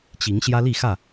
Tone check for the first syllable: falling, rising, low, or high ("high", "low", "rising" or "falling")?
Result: rising